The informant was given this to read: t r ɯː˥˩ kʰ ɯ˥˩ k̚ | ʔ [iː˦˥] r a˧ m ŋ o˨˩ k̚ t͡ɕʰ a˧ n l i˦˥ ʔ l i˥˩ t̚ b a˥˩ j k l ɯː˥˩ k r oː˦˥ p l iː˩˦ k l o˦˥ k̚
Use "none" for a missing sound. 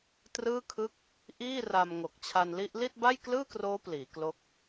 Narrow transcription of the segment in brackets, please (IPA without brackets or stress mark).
iː˥˩